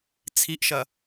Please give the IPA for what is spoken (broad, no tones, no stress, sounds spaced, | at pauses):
t͡sʰ i ʔ ʃ ɐ